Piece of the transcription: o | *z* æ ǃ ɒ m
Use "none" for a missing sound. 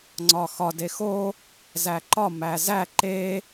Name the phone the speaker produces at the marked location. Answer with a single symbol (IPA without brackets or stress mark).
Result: z